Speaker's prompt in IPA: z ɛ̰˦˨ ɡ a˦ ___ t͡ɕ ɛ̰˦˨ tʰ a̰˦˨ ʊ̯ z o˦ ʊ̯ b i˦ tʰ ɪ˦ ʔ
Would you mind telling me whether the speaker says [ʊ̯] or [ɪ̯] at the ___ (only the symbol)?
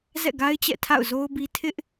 ɪ̯